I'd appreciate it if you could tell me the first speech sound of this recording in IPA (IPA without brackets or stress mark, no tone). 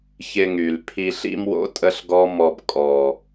ç